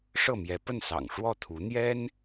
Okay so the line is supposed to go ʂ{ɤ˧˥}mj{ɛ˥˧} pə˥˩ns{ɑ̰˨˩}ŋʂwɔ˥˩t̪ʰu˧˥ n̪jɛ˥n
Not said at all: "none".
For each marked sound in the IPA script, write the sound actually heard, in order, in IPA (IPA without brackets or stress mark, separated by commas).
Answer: ɤ˥˩, ɛ˧˥, ɑ̰˨˩